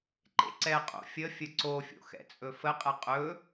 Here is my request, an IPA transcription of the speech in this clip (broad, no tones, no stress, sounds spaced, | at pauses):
ǃ ḛ ǀ ɛ qʼ o̰ fʲ ə fʲ ə ǀ o fʲ o̰ x ɛ̰ t͡sʼ ɵ f ə qʼ ɛ qʼ ɵ